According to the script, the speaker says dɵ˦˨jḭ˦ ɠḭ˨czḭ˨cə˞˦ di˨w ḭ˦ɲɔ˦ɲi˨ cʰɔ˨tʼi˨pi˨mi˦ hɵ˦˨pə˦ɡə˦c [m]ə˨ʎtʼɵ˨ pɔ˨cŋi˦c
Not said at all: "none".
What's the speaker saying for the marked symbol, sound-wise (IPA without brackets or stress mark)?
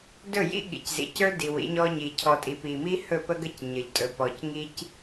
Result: ɲ